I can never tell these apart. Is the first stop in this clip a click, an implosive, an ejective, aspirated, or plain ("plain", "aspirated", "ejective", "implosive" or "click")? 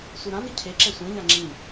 aspirated